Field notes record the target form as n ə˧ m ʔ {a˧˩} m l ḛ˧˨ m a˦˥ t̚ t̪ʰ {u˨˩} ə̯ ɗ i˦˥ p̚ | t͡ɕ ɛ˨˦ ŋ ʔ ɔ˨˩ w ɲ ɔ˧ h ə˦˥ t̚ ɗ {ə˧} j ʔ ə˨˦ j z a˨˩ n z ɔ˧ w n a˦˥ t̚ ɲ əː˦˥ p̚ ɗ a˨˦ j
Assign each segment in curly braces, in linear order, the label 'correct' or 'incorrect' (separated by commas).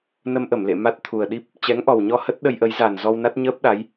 incorrect, correct, correct